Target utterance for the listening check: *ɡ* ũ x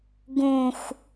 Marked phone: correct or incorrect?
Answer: correct